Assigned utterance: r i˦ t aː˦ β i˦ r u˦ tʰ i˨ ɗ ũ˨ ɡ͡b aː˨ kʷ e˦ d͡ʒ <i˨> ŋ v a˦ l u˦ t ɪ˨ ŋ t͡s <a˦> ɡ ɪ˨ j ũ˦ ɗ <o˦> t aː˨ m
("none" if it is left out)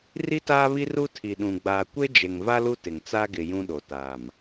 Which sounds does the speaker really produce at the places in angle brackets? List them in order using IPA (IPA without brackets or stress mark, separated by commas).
e˨, a˦, o˨